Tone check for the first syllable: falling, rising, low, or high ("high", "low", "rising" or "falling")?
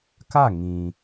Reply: falling